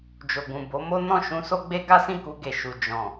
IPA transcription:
d͡ʒ o˨ ɡ ũ˨ b o˨˦ m o˦ n ɔ̃˦˨ ʃ ũ˧ s o˦ ɡ͡b e˦ ɡ a˦ s ĩ˦˨ k u˧ ɡ e˨ ʃ u˨ d͡ʒ ɔ̃˨

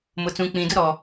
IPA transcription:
m ʊ˨ t͡s ũ˨ k͡p ĩ˨ d ʊ˦ ɾ ɔ˨

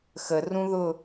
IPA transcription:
x ə r ũ ð ʊ

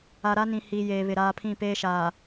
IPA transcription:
a˨ ɾ a˦ n ĩ˨ h iː˨ j eː˨ β ɪ˨ ɾ aː˦ pʰ ĩ˦˨ p eː˦ ʃ aː˨

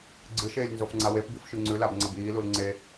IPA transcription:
ɡ͡ǀ ɨ ʃ eː lʲ n z o f ŋ͡ǀ a w e p b i f ʃ ʉ ŋ͡ǀ ʉ l a b ŋ͡ǀ ɐ b iː l u l ŋ͡ǀ e

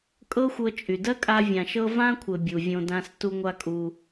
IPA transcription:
kʼ ɤ˦ xʷ ɤ˧ t͡ʃʼ y˨ d ɜ˦ kʼ a˧ vʲ ã˨ ʃ ɤ˦ v ã˦ kʷʰ ɘ˨ bʲ u˨ vʲ õ˧ d ã˧ s t u˦ ŋʷ a˦ kʼ u˧

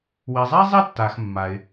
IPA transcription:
w i˩ zˤ ɛ˥ zˤ i˥˨ tː a˩ x mː a˩ ɪ̯

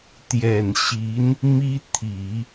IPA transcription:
t̪ j ɛ˨˩ n ɕ i˧˥ n | m i˥ t̪ʰ i˨˩˦

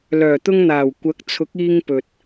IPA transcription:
l œː˨˩ t̪ ʊ˧ ŋ n̪ aː˨˩ w kʷ ɐ˨˥ k̚ t͡sʰ ʊ˨˥ k̚ iː˧ ŋ p ɵ˨ t̚

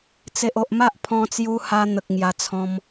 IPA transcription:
t͡s e˨ ʔ o˨ ʔ m a˦ ʔ pʰ ɔ̃˧ t͡s j u˧ h a˧ n̪ ə˨ k̚ ŋ j a˧ t͡sʰ ɔ̃˧ m

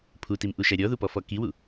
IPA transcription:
pʰ u t i m ʔ u ʃ æ ɾʲ ɔ ð u p ɔ f ɔ k i w u

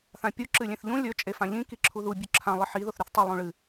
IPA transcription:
θ ã pʲ u ǁ ɨ lʲ ẽ θ ʎ ũ lʲ ɵ t͡ʃʼ e f ã ʎ ĩ k i ǁʰ u ð u bʲ ʉ ǁʰ ã lˠ ɨ ħ i ð o θ ɾ ʉ θ tˤ e lˠ ũ ɭ ɨ

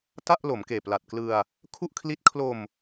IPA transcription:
t a˥˩ ʔ l o˩˦ m k eː˨˩ p l a˨˩ t̚ k l ɯ˧ a̯ | kʰ u˥˩ ʔ kʰ l i˦˥ t̚ kʰ l o˧ m

